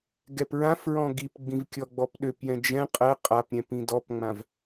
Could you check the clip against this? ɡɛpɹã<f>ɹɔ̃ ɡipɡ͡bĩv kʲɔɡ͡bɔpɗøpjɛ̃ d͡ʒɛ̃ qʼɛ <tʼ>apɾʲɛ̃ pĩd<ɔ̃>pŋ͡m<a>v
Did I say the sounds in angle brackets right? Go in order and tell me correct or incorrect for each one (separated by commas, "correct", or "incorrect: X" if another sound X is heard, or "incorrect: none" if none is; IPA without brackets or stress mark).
correct, incorrect: qʼ, incorrect: ɔ, incorrect: ã